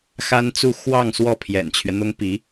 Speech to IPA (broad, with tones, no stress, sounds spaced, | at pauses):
x a˥ n t͡s u˥˧ x w ɑ˥˧ ŋ s w ɔ˥˩ pʰ j ɛ̰˨˩ n t͡ɕʰ ɥ ɛ˦ n̪ ʊ˥ ŋ p i˧˥